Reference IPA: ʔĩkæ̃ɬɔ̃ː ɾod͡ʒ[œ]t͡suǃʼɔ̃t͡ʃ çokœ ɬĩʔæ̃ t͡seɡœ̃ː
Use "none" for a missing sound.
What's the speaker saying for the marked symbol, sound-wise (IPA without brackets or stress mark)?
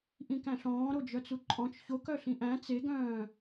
œ